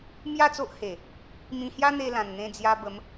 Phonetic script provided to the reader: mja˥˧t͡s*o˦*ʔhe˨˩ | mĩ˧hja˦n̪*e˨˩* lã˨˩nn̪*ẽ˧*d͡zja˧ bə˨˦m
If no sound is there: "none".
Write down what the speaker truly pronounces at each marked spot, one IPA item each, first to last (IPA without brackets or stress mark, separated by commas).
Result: o˦, e˧, ẽ˧